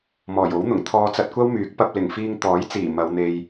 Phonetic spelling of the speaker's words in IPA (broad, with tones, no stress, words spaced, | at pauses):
mɔː˨˩jo˨˥wn̪ʊ˨˩ŋ t̪ʰɔː˧t͡sɐ˧t̚kʷɐ˥wmyː˨˥k̚ pɐ˧p̚lɪ˨˩ŋfiː˧ŋ t̪ɔː˨˥jt͡siː˨˩ mɐ˨˧wn̪e˧j